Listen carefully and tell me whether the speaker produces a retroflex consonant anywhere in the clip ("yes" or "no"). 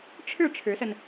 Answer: yes